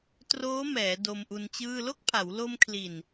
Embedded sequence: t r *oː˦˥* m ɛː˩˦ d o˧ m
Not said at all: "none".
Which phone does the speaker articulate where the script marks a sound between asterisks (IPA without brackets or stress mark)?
oː˦˥